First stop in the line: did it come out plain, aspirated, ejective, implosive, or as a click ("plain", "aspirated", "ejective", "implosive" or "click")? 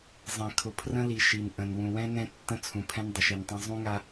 aspirated